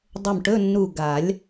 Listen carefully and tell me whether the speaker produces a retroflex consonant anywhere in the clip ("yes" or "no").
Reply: yes